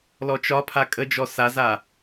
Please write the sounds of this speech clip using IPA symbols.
l ɔ t͡ʃ ɒ pʰ a kʼ ə d͡ʒ ɔ s a z a

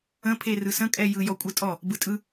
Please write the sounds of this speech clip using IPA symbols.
ə̃ pʰ e r ɯ s ə̃ kʼ ɛ j ɯ j ɔ kʷʼ ɯ tʼ ɔ | b ɯ tʼ ɯ

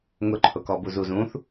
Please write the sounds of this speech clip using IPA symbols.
ŋ ʊ ǃʰ ʊ k ɔ b u z u z ũ θ

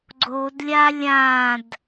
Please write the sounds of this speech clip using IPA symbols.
ɡ͡ǀ o d lʲ a lʲ ã d

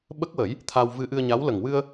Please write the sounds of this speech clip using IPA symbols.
ɓ ə˦˥ k̚ w ə˨˩˦ j | t̪ʰ a˧ w v ɨ˧ ʔ ɨ˧ ə̯ ɲ a˧˥ w l ə˨˩ ŋ w ɨ˧ ə̯

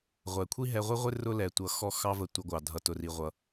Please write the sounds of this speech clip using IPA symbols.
ʁʷ ɛ˨ kʷʰ i˦ ɦ ɛ˧ ʁʷ i˦ ʁʷ ɪ˦ r ʊ˦ l ɛ˨ tʷ ʌ˨ x ɔ˧ x ɑ˦ v ə˧ tʷ ʌ˧ ɡʷ ɑ˨ dʱ ʌ˨ t ʊ˨ r i˨ ʁʷ ʌ˨

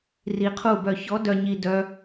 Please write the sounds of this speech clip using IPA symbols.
r i˧ qʰ u˥˩ b œ˥˩ ç ɔ˧˥ d œ˧ ɲ i˧ d œ˥

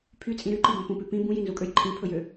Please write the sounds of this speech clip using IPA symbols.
pʰ y t͡sʼ ĩ ɾ y ǃ i b õ p ũ p ʉ p ĩ b ũ j i n z u kʼ ø j ǃʰ ĩ pʰ ɵ j ø

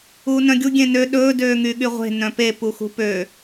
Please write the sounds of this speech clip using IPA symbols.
uː n œ̃ ɡʲ u ɡʲ ẽ n ø ɗ ɵː d øː ŋ y ɠ y ʁʷ e̤ n œ̃ p e p u x ṳ p ø

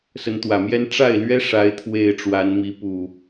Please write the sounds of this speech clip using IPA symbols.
s ə˨˦ n t̪ w ä˨˩ m j ɛ˦ n ʈ͡ʂ a˥˨ ɪ̯ l ɥ ɛ˦ ʂ a˨˦ ɪ̯ t̪ʰ w e˨˩ ɪ̯ ʈ͡ʂ w a˨˦ n m i˨˦ p u˨˩

